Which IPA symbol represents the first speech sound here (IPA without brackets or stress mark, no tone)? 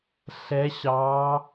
ɬ